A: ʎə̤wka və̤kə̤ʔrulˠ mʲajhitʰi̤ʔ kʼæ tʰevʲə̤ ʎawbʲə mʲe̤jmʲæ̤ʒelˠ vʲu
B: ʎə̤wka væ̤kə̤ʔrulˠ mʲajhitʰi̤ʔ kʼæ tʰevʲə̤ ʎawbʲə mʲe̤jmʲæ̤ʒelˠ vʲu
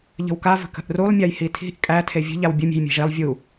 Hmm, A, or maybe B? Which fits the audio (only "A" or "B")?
A